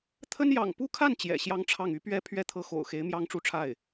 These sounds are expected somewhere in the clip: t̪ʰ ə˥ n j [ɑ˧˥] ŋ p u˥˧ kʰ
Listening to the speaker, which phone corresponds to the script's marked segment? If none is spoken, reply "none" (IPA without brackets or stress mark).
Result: ɑ̰˨˩